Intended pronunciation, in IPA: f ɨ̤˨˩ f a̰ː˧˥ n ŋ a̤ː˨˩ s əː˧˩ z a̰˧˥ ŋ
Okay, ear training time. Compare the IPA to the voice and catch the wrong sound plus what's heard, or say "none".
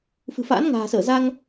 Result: a̰˧˥ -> a˧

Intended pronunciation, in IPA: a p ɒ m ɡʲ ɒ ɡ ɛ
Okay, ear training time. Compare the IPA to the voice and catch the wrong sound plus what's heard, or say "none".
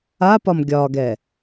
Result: none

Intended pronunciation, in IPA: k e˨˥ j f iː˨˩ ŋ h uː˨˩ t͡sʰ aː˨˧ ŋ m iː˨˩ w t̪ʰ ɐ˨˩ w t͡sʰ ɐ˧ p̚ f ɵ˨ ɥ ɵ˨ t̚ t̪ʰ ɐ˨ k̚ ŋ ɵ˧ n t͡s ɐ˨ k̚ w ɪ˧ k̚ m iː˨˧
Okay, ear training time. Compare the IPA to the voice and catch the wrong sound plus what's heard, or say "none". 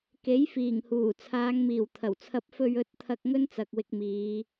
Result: none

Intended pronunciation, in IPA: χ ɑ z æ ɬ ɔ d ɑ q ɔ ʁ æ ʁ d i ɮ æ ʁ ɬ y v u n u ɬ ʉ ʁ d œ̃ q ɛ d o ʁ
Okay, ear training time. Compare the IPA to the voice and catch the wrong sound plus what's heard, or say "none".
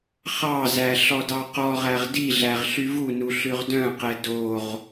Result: none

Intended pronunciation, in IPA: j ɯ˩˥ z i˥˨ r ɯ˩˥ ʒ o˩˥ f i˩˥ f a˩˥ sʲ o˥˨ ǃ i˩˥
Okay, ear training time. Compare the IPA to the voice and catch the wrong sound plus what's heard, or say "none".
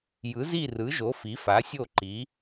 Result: none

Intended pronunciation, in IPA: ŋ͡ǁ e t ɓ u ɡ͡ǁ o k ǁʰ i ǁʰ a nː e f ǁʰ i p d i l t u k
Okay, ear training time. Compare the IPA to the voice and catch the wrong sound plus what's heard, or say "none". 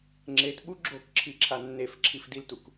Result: p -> f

